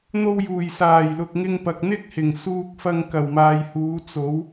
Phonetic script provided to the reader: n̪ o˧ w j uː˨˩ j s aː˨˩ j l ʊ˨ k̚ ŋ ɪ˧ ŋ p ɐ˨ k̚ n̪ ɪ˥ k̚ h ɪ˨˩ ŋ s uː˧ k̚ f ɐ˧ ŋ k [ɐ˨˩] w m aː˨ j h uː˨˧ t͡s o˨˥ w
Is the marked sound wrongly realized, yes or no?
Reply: no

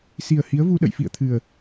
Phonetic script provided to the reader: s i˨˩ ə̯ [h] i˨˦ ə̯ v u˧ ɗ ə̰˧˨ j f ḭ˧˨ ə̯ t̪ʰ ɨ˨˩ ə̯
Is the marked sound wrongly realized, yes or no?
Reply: no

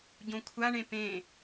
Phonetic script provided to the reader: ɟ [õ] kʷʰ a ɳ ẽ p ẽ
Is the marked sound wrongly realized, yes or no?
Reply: no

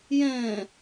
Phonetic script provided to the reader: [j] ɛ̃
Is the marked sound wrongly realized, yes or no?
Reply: no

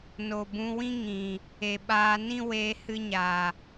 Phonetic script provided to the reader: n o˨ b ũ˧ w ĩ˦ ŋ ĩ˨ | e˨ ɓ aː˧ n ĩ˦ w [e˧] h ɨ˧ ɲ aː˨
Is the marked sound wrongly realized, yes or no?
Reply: yes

